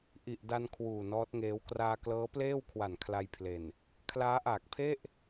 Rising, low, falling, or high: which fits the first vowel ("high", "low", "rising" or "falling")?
low